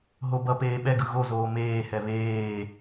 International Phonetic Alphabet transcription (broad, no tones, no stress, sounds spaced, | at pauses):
ɦ o b ʌ p eː ɓ ɛ ɡ ɯ ɣ o z oː m eː h ɛ β eː